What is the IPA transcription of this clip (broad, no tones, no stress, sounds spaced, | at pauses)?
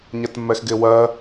ɲ ɛ t mː ɛ x ɡ ɪː w ɜ